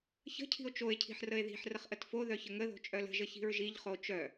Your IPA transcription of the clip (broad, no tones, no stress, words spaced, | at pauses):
çə̤cʰi̤o̯ t͡ʃoe̯cʰi̤ħ rəe̯ði̤ħ rəχʔətfo ðœçəŋəðo̤ t͡ʃʼœlə̤ʒə çi̤ɹʒiʎχo t͡ʃœ